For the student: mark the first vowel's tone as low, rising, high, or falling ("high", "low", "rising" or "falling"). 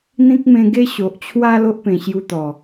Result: high